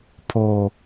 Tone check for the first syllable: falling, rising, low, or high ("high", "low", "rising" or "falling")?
low